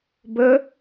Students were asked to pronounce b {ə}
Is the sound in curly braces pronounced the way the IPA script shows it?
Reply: yes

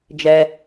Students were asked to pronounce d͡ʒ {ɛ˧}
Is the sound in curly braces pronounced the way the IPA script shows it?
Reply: yes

